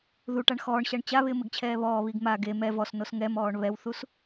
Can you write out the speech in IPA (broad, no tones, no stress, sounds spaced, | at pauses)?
ð u ʈ a ɳ x ɔː ɳ ɕ a ɳ t͡ɕ a β ɪː m ɪ ɡ t͡ɕʰ ɛː β ɔː β i ɡ m a ɡ e m ɛ v ɔ s n o s ŋ ɛ m ɔː ɳ β ɛ w θ u s